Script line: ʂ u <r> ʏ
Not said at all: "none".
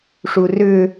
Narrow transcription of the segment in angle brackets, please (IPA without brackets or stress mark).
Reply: r